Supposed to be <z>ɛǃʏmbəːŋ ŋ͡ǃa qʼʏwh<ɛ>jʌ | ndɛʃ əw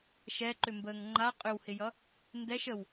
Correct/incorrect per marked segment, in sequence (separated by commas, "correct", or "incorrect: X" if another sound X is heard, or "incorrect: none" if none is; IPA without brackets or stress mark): incorrect: ʃ, incorrect: ɪ